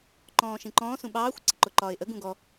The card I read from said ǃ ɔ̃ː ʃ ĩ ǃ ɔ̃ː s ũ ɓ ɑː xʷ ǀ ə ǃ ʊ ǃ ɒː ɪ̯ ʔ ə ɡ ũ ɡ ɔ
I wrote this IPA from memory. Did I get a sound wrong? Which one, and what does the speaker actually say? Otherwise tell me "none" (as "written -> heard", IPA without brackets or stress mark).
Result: none